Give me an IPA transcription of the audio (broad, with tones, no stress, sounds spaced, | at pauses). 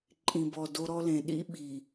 ǃʼ ĩ˨ b ɔ˨ d o˦ ɾ ɔ˦ l ẽ˨ ɗ ḭ˦ ɓ i˨